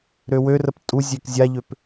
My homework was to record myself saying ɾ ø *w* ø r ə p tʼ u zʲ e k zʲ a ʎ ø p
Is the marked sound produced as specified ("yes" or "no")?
yes